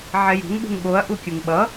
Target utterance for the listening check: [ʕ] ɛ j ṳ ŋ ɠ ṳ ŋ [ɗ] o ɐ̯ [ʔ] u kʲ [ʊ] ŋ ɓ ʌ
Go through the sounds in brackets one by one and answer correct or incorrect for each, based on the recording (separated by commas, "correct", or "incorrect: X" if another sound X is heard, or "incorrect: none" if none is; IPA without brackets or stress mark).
correct, incorrect: ɠ, correct, incorrect: ɯ